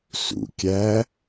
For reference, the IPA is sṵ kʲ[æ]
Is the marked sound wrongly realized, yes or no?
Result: no